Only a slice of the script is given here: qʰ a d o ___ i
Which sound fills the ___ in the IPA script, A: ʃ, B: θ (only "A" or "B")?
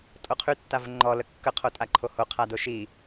A